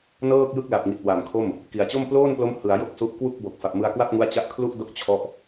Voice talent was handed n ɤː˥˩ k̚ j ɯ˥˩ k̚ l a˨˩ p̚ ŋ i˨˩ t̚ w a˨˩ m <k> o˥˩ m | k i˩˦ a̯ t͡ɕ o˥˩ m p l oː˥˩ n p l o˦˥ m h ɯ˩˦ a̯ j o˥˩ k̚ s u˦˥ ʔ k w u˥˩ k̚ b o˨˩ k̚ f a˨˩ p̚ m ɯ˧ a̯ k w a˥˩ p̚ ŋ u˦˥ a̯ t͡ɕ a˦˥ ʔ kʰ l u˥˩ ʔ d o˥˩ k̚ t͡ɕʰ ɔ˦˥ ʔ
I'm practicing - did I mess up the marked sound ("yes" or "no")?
yes